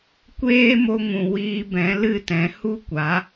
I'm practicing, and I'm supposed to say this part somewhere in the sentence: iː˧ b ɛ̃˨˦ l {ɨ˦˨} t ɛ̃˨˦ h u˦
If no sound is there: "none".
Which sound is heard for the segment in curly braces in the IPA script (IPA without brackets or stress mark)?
ɨ˦˨